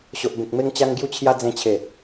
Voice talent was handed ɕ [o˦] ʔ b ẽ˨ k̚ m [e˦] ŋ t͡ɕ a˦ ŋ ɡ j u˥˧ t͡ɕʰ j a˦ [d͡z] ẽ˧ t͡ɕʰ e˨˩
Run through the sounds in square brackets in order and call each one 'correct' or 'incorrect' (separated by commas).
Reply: incorrect, correct, correct